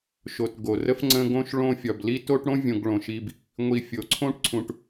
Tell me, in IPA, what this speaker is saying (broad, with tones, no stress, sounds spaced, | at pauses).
ʃ o˨ t ɡ o˩ r ə˥ f ŋ͡ǀ ə̃˦ ɡ õ˥ ʃ ɭ õ˦ fʲ ɒ˩ b l i˥ t o˥ ʈ ɽ õ˥ vʲ õ˨ ɡ ɭ õ˩ ʃ i˨ b | ŋʷ i˨ fʲ o˩ ǀʰ õ˦ ʈ ǀʰ ũ˨ ʈ